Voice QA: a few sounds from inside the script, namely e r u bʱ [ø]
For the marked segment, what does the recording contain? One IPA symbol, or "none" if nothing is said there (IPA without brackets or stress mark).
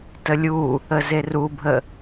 ə